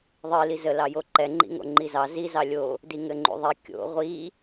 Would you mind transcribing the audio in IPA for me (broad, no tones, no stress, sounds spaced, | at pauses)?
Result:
ðˤ ɨ l i z ə l ɑ j o ǃ ɛ ŋ͡ǃ ḭ ŋ o̰ ŋ͡ǃ i z ɑ z i z ɑ lʲ o | d i ŋ ɘ ŋ͡ǃ ṵ ðˤ i kʲ o̰ ʁʷ i